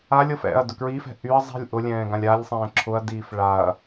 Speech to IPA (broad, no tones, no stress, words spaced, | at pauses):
alʲɤf ɛ̰ɐ̯ dʊkɹifɛ̤ ʔyɐ̯ zˤi̤lʲ ʔʊlʲɛ̃ː ɡãlʲalʲsˤɛ̃ː ǁʰʊɐ̯diːf ɭaɐ̯